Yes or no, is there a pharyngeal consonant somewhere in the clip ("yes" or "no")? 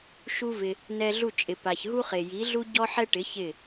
yes